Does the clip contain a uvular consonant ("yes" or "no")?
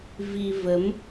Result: no